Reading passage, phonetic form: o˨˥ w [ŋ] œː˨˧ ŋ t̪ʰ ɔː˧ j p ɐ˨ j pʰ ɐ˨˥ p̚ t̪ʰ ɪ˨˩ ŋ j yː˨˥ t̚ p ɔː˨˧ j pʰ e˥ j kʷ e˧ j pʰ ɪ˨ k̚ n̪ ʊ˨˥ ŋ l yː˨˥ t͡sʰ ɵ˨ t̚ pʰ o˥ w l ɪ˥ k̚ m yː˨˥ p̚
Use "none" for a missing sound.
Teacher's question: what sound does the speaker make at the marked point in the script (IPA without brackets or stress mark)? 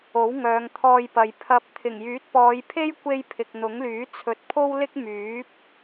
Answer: ŋ